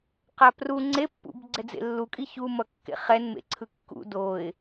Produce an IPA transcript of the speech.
q a p r u ŋ͡ǀ e pː ṵ b ɡ͡ǀ ɛ d͡z ḛ lː u kʼ i ç u m ʌ kː ḛ χ ɛ n m ḛ ǀʰ ɯ kː ṵ d o ɪ̯

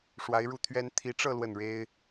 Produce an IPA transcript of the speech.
ʂ w a˧˥ ɪ̯ ɻ u˥˩ t̪ʰ ɥ ɛ˥ n t̪ʰ i˧˥ ʈ͡ʂ ɤ˥˧ l w ə˥˩ n ɻ e˥ ɪ̯

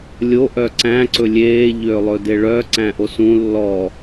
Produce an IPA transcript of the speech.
lʲ o ʔ œ ǀ æ̃ ǀ ɵ lʲ eː ʎ øː lˠ ɵ d e ɭ œ ǀ æ̃ ʔ o s ũ lː ɔ

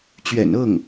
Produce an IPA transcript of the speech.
t͡ɕ ɥ ɛ̰˨˩ n ɤ˥˩ ŋ

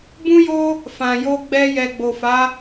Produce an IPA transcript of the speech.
b ũ˦ j o˦ | f ã˨ j o˧ ɡ͡b ɛ˧ j ɛ˨ ɡ͡b o˨ f a˨˦

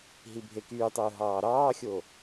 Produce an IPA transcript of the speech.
ɦ i bʱ e k yː tˤ ɯː ɦ ɑː ɾ ɑː xʲ o

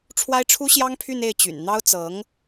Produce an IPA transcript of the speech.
ʈ͡ʂʰ w a˥ ɪ̯ ʈ͡ʂʰ u˥ ɕ j ɑ˥ ŋ pʰ y˥˧ n e˥˩ ɪ̯ t͡ɕ y̰˨˩ n n̪ ɑ˥ ʊ̯ t͡s ɤ˧˥ ŋ

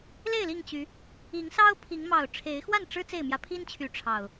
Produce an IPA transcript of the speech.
l e˥˨ ɪ̯ l i˥˨ ŋ t͡ɕ y˨˦ | i˨˦ ŋ s ɑ˦ ʊ̯ pʰ i˨˦ ŋ m ɑ˨˩ ʊ̯ ʈ͡ʂʰ e˨˦ ɪ̯ x w a˥˨ n ʈ͡ʂ ɻ̩˦ t͡s e˥˨ ɪ̯ m j ä˦ pʰ i˦ n t͡ɕʰ y˨˦ ʈ͡ʂʰ ɑ˨˩ ʊ̯

